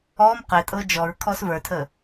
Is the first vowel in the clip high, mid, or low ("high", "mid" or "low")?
mid